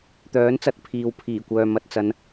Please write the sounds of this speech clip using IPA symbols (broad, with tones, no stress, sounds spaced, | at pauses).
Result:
t̪ œː˨˥ n t͡s ɐ˧ t̚ pʰ iː˨ w pʰ iː˨˩ kʷ œː˨ m ɐ˧ t̚ t͡s ɐ˨˧ n